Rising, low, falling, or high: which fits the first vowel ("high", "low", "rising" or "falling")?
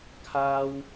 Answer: high